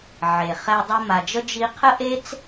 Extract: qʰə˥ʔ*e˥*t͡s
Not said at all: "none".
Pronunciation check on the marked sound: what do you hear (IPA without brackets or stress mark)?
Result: e˥